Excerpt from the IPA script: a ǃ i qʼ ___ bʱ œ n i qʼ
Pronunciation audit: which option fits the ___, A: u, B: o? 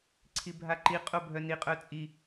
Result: B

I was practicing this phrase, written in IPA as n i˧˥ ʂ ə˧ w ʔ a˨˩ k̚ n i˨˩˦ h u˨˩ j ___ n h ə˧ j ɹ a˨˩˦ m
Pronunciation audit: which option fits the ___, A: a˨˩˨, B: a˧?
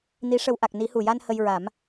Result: B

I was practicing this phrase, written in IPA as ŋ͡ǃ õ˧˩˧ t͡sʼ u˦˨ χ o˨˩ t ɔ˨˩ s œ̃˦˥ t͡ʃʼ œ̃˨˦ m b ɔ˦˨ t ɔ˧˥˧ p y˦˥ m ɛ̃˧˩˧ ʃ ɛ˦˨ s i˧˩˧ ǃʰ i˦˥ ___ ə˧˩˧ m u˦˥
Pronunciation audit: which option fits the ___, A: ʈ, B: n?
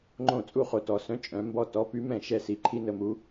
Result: B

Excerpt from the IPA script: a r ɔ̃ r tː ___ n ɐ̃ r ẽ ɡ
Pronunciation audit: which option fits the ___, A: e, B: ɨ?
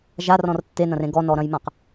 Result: A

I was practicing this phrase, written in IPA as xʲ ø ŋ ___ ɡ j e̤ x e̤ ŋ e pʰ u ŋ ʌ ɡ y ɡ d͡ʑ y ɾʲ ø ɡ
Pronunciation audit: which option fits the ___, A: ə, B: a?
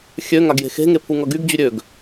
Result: B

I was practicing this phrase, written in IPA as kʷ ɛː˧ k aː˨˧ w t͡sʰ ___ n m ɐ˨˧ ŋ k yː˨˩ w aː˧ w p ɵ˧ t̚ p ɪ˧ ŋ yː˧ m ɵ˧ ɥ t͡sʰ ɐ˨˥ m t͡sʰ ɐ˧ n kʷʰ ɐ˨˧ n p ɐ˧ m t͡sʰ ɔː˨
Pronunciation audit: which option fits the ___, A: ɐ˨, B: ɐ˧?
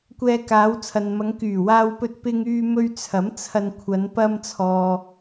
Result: A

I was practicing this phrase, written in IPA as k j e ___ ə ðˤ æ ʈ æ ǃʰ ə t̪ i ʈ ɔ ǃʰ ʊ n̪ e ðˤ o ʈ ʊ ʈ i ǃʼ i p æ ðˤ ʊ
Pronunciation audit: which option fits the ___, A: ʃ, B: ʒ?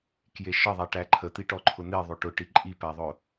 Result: A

